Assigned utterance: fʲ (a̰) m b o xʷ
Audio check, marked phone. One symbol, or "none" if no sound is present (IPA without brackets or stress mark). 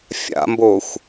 a̰